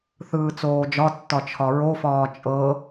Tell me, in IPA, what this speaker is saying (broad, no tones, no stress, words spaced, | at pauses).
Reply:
θɯːt͡soːd͡ʒɒtːɒ t͡ʃʰɒɹofɒː t͡ʃʼɤ